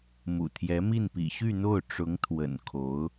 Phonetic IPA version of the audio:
m ṵ˨˩ t̪ʰ j ɛ˧˥ m i˥˩ n p ḭ˨˩ ɕ y˥˧ n̪ o˥˩ ʊ̯ ʈ͡ʂ ʊ˧˥ ŋ t̪ʰ w ə̰˨˩ n kʰ o˧˥ ʊ̯

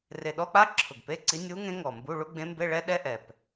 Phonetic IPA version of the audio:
r e˨˩ ɗ ɔ˧˥˧ k͡p a˥ ǁʰ ʊ˨˩ ɡ p e˧˥˧ ǀ i˧˥ nʲ u˧˥ ŋ ẽ˧˥ ŋ ɔ˨˩ m b u˧˥˧ ɭ u˥ ɡ͡b ẽ˧˥ m b e˧˥˧ ɭ ɛ˥ ɗ ɛ˥ ʔ ɛ˨˩ p

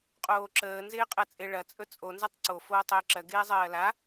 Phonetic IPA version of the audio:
qʼ oː ǁ əː n z ɪː qʼ ɜ t͡sʼ ɪ ɭ ɐ t͡sʼ ɵ t͡sʼ o n z ɐ tˤ ǀ o f oː tˤ ɪː ǁ ɜ ɡ ɪː zˤ ɜː l a

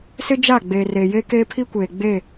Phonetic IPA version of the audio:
s ɪ˦ d͡ʒ a˦˨ ɡ͡b eː˨ r eː˨ j e˦ k e˦ pʰ i˦ kʷ eː˨ ɡ͡b e˦˨

